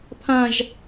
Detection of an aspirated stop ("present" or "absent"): present